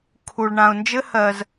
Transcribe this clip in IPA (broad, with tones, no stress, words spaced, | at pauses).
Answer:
kʰu˧ɭ ɳã˧ʊ̯nd͡ʒɘ˦ hɜ˧z